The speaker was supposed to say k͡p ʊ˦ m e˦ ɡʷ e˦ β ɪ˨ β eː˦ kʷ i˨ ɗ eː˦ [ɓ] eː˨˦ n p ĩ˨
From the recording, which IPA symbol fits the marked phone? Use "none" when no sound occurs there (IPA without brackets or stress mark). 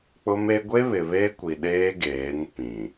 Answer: ɡ